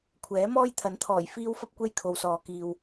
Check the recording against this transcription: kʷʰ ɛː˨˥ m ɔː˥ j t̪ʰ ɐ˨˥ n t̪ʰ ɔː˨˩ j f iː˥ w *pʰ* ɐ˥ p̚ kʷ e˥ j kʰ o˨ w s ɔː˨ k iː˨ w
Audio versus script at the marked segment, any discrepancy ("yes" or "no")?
yes